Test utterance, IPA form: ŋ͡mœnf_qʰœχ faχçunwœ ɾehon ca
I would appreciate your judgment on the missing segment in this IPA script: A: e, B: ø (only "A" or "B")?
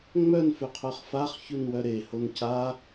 B